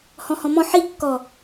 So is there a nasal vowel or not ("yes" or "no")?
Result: yes